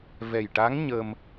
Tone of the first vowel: low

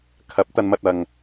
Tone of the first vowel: rising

